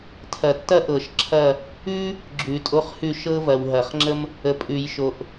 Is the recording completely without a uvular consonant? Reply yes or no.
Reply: no